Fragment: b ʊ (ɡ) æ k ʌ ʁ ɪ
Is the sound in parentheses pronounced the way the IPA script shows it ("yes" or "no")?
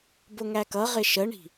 no